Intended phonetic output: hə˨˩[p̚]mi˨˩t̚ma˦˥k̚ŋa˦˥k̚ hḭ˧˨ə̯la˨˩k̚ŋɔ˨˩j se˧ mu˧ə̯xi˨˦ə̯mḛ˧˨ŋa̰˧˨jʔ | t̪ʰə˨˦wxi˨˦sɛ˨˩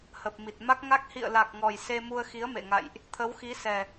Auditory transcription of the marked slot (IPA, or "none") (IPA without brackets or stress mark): p̚